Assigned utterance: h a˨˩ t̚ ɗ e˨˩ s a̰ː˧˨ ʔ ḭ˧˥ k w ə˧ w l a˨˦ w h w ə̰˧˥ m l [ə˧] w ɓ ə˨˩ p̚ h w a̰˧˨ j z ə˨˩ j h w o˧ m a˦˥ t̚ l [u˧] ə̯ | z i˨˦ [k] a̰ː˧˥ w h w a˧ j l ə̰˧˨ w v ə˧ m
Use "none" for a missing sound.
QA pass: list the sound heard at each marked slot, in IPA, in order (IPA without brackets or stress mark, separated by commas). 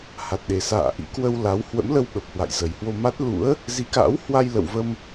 ə˧, ṵ˧˥, k